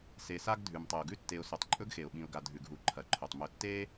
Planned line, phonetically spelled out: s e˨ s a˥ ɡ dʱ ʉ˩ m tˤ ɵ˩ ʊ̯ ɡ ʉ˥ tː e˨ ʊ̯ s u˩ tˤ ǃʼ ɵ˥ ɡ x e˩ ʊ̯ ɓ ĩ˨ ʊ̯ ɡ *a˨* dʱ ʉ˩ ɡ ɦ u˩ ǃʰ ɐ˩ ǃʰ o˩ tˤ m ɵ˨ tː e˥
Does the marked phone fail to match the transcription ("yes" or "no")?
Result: no